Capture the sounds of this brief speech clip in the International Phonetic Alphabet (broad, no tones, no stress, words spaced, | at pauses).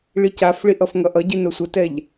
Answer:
ɭicafɭiʔ ʌfŋʌʔʌɟi nosʷʌtɛʎ